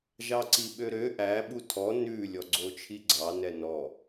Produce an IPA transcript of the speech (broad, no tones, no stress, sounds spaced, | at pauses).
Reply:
ʒ ɑ ǀ i ɓ ø ɾ ø ʔ æ ɓ u tʰ ɔ n ʉ lʲ ɔ ɡ͡ǀ o t͡ʃʰ i ɡ͡ǀ ɑ n ɛ n ɔ